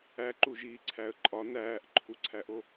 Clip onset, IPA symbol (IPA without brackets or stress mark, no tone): æ